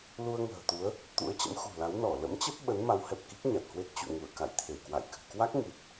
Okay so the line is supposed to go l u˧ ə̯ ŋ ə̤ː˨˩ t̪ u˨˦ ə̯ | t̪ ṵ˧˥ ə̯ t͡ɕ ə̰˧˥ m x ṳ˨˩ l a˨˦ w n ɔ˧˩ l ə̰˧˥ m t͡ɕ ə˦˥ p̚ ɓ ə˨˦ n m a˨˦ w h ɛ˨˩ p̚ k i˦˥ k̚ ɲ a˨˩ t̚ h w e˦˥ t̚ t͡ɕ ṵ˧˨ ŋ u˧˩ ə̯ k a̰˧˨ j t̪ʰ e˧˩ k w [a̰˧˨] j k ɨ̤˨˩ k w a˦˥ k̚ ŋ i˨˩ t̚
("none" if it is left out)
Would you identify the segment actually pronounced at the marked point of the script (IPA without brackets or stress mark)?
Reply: a̰˧˨